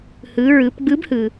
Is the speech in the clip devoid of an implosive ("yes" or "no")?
yes